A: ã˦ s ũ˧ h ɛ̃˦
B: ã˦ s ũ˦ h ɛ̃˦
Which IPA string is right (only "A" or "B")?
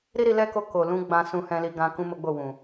B